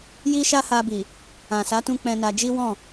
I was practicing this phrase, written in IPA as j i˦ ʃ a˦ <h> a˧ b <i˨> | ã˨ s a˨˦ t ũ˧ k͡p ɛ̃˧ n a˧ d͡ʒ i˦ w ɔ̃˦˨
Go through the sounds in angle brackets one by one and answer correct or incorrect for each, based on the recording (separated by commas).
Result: correct, correct